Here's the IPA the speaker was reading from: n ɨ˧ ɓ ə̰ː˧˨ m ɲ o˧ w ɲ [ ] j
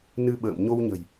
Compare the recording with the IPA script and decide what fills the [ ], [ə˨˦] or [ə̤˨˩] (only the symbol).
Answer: ə̤˨˩